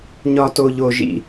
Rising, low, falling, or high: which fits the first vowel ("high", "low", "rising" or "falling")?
high